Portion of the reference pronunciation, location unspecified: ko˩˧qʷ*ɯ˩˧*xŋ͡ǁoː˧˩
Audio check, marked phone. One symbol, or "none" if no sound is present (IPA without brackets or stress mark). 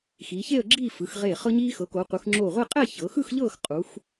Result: ɯ˩˧